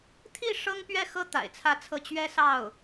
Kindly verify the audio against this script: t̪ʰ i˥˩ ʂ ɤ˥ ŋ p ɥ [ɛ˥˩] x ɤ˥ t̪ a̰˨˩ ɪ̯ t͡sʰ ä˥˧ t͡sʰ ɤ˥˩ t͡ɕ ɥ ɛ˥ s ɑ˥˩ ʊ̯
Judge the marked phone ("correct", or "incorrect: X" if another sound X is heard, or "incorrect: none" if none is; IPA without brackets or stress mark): correct